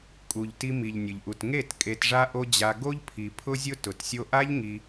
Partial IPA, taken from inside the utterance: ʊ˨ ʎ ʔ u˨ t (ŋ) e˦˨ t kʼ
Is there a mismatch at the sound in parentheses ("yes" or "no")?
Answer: no